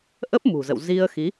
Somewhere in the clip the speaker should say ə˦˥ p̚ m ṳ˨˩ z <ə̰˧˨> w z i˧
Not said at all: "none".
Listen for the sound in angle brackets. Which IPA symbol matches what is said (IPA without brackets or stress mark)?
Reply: ə̰˧˨